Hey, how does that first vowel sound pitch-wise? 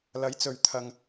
rising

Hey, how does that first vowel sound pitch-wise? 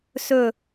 falling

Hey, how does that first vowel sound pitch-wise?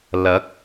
rising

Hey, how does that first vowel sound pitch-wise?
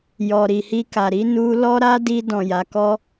low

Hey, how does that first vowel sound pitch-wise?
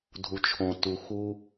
low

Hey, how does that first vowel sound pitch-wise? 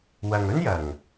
low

